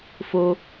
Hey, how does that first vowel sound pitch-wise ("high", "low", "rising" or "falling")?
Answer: high